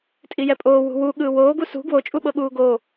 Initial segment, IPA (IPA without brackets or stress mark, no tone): tʼ